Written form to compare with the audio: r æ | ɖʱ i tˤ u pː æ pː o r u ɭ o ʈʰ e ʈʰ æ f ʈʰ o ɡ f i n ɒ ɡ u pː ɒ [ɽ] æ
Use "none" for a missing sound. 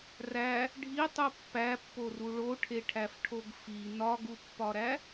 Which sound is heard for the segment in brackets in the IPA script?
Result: ɾ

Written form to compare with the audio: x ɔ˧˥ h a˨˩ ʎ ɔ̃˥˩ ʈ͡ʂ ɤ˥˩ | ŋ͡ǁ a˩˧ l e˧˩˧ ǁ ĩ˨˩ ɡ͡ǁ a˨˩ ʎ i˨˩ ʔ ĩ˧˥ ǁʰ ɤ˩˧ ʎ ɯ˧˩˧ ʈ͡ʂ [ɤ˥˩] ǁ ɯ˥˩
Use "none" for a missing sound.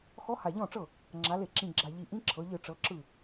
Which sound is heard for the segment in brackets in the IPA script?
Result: ɤ˩˧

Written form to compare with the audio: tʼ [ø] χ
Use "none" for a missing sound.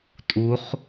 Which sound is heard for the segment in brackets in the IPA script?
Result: u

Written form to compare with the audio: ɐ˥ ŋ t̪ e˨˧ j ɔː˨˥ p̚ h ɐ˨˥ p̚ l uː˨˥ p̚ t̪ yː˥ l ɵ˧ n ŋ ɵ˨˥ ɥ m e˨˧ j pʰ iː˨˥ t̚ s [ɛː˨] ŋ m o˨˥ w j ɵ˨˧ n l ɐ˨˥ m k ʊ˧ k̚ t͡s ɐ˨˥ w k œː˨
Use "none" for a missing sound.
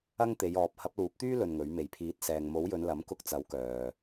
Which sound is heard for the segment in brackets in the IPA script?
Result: ɛː˨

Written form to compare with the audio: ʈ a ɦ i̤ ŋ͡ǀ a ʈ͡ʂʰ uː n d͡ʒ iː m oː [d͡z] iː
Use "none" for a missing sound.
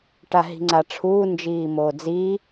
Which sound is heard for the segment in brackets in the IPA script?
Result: d͡z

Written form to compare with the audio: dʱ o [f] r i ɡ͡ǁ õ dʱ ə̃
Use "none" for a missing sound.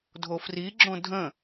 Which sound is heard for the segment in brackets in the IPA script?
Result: f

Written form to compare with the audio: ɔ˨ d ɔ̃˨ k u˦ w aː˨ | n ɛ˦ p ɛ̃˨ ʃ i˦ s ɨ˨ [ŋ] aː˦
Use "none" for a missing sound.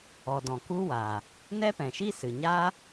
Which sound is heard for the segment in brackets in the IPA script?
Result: ɲ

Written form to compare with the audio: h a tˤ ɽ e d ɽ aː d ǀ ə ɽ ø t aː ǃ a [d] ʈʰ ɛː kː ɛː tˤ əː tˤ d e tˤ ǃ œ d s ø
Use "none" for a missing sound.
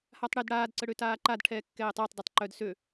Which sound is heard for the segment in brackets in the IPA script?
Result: d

